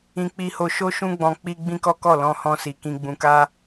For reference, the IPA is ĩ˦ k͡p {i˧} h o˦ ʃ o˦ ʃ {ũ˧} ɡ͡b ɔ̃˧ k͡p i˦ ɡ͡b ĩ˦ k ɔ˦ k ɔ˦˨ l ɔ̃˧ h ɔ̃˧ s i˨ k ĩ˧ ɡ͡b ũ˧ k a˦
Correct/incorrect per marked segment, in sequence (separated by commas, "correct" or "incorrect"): incorrect, incorrect